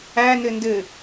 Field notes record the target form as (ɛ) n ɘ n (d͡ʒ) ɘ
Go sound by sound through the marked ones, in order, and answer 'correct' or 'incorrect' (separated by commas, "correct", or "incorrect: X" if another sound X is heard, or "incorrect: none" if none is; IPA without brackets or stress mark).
incorrect: æ, incorrect: d